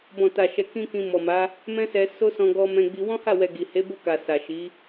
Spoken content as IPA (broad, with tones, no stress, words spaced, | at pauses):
bɔ̃˨ta˨ʃɛ˨ kĩ˧ kĩ˧mɔ˨ma˨˦ | mɛ̃˦sɛ˧ so˦sɔ̃˧ ɡɔ˧mɛ̃˧ɡ͡bi˧ wɔ̃˦ha˦˨wɛ˨ ɡi˨he˨˦bo˦˨ka˨ sa˨ʃi˨˦